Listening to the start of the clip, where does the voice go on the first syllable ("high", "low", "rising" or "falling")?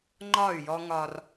falling